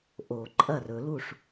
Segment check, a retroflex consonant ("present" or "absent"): present